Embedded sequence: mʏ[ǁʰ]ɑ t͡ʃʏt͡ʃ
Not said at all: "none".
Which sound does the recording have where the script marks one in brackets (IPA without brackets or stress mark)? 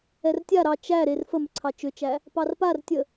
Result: ǀʰ